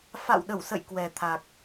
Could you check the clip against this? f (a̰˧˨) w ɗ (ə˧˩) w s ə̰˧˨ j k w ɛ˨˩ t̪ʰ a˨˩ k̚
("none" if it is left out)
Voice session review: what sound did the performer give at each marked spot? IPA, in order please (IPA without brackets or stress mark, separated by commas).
a̰˧˨, ə˧˩